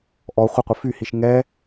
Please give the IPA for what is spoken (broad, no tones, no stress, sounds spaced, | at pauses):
ʔ ɔ χʷ ə qʷ ə f y h i ʃ ŋ ɛ